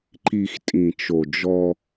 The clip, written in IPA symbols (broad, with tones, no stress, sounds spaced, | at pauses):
ǃ i˨ x tʼ ĩ˨ t͡ʃ o˨ d͡ʒ ɔ˦